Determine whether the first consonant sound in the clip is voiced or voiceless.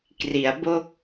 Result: voiceless